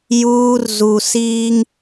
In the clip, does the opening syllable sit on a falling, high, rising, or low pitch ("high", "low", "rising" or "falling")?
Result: high